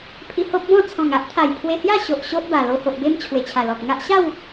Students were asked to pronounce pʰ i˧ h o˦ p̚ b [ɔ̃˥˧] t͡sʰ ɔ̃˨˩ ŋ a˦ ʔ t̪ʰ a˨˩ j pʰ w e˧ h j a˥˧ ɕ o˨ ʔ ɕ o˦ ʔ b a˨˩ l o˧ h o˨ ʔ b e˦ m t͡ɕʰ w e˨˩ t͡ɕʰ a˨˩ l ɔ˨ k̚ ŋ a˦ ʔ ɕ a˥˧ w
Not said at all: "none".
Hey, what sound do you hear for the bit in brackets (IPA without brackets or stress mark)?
ɔ̃˥˧